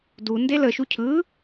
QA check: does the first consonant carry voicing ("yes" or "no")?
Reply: yes